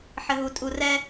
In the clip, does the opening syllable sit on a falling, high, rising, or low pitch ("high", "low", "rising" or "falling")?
high